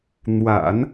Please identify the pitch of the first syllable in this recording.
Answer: low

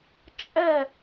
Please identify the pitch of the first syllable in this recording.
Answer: falling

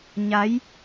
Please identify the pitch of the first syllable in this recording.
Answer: rising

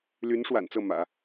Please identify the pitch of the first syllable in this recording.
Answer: rising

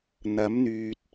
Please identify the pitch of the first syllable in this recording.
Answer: rising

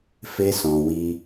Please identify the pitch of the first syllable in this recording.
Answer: high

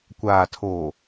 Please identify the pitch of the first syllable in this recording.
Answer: low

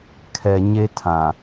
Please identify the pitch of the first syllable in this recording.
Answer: low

